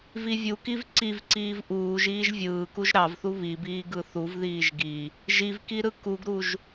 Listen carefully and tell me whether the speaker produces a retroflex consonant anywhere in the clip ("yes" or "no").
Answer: no